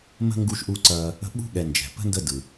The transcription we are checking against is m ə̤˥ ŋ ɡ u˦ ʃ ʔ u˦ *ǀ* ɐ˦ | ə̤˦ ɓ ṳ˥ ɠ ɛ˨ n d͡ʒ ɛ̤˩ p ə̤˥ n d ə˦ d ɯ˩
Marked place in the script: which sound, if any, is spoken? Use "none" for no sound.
ǀ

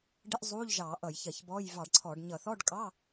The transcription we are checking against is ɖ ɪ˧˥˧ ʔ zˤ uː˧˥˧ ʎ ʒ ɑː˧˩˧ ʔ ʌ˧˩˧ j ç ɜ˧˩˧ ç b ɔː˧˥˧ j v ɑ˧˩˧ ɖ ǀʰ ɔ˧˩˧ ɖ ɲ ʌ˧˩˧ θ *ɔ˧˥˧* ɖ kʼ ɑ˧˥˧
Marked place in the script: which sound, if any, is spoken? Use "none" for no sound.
ɔ˧˥˧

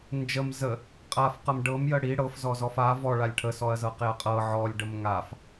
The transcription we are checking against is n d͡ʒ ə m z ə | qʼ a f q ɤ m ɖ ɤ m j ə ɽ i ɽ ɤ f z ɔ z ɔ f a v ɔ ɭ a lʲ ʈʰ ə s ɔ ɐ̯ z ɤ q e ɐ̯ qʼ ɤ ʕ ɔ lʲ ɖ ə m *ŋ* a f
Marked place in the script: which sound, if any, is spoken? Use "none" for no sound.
ŋ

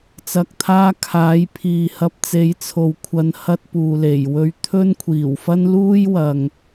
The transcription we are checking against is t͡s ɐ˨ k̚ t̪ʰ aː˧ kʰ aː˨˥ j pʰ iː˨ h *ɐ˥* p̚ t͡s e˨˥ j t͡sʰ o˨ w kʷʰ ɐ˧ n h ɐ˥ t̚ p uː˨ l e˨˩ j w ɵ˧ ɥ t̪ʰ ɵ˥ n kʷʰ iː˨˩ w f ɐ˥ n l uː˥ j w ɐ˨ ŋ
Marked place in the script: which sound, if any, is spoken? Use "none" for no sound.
ɐ˧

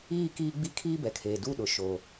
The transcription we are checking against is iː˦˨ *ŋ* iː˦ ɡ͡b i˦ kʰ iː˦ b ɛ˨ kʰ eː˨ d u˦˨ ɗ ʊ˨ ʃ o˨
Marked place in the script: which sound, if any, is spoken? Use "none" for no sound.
k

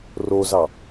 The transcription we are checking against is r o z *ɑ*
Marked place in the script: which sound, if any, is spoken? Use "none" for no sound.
ɑ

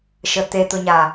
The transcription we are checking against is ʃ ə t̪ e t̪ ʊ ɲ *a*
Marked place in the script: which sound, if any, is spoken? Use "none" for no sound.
a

